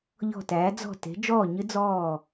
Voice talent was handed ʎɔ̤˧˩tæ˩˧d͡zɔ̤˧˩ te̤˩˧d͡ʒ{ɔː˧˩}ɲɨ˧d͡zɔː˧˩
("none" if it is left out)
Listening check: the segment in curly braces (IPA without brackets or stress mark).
ɔː˧˩